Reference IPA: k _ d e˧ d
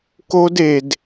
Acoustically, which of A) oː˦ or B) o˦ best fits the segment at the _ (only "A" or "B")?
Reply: B